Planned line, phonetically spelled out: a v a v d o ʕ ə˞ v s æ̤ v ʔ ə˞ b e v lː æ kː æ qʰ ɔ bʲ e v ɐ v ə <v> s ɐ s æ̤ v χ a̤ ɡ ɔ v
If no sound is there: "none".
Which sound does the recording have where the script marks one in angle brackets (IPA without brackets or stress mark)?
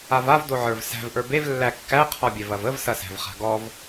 v